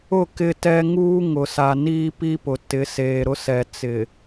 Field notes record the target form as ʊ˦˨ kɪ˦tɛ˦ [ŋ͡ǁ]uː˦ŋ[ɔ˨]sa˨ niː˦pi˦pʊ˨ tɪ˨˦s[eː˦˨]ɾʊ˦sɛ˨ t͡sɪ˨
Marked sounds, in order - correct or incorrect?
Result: incorrect: ŋ, incorrect: ʊ˨, incorrect: eː˨

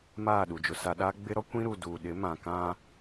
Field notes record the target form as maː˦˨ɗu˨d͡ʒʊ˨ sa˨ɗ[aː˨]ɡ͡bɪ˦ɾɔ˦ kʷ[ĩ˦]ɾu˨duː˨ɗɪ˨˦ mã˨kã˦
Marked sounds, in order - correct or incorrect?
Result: incorrect: aː˦, correct

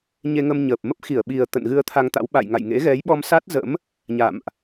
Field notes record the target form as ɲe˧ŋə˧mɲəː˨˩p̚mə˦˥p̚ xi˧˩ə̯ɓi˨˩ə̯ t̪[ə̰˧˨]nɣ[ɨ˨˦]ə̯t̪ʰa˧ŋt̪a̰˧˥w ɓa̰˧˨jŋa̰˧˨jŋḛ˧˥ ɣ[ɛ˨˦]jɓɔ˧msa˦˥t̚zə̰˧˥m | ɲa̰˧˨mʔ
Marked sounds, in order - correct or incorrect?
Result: correct, incorrect: ɨ˧, correct

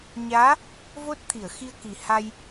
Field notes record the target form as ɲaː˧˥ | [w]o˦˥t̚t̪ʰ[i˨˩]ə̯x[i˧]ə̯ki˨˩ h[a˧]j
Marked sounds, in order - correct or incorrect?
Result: incorrect: v, incorrect: i˨˩˨, correct, correct

